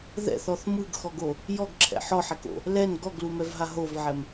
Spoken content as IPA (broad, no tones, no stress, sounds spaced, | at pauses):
ð ɛ̰ θ ɔ θ m ɯ ɡ x ɔ ɡ o | j ɔ ɡ ǁʰ ɛ̰ ħ ɔ ħ ɛ k o̰ | l ɛ n ɡ ɔ ɡ l u m ɛ v ɦ a ɦ o v ʕ ɛ m